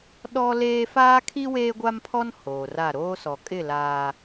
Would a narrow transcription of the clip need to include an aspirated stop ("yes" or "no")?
yes